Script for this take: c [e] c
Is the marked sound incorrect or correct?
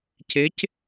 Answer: correct